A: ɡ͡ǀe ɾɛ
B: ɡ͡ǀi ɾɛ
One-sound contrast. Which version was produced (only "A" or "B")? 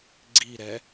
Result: B